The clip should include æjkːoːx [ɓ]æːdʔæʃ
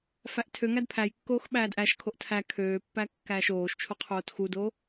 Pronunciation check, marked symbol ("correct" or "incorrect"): correct